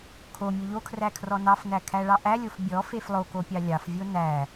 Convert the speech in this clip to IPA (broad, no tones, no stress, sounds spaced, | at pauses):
kʰ o mʲ o ʎ o kʰ r æ kʰ r ɔ n ɑ f n æ kʰ æ ɭ ɑ ʔ æ lʲ o f bʲ ɔ f e f lˠ o k o pʲ ɑ lʲ ɑ f vʲ o n æ